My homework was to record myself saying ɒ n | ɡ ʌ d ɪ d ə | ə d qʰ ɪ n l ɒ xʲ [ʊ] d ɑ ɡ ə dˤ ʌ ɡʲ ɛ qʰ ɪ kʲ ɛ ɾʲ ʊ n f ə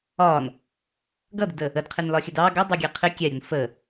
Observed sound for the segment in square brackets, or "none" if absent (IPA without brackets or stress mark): ə